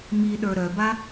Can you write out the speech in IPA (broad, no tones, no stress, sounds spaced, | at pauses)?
m i ɗ ə˞ ɾ œ b a